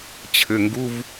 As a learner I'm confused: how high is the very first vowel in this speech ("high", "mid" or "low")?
mid